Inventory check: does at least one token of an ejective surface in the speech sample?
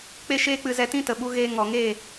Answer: no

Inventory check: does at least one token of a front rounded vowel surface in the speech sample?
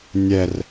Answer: no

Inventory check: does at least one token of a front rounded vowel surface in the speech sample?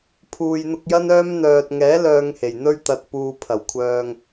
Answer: yes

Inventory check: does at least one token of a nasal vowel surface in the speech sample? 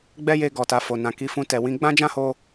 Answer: yes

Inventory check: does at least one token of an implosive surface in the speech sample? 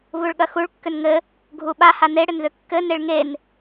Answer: yes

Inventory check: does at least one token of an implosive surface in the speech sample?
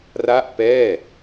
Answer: no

